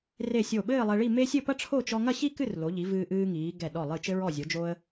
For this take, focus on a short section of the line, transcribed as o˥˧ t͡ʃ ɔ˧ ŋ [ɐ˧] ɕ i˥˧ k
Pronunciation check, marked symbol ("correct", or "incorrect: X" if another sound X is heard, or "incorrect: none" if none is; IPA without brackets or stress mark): incorrect: ɐ˥˧